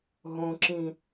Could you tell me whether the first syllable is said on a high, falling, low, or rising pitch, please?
low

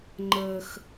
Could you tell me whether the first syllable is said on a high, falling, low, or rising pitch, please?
low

